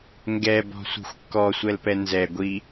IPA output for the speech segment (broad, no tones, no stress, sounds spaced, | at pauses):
ŋ ɡ ɛ b ɔ̤ sʷ i̤ xʷ kː ɔ sʷ ɛ l p ɛ n z ɛ ɡʷ i